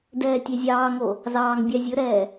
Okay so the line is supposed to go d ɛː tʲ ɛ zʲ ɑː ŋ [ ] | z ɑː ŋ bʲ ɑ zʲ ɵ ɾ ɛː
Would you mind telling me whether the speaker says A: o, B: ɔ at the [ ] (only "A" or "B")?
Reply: A